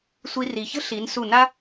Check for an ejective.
absent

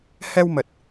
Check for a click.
absent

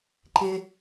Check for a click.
present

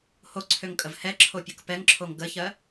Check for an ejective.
present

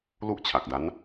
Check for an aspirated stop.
present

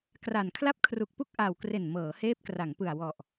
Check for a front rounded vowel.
absent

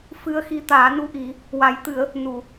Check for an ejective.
absent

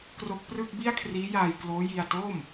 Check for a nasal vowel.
absent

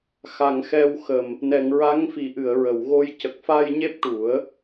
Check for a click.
absent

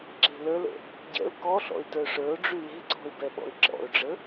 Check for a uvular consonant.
absent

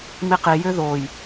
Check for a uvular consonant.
present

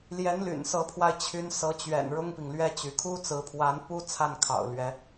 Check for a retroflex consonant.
present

